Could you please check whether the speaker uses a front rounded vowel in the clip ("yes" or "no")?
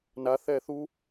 no